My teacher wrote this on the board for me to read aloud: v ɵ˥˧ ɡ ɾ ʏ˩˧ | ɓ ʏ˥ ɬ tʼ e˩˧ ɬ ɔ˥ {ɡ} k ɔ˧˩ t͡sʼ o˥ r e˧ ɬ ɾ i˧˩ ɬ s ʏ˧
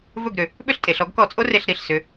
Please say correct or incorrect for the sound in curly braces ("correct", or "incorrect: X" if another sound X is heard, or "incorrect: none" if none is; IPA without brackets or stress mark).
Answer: correct